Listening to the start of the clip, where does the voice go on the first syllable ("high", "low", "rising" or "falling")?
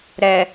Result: low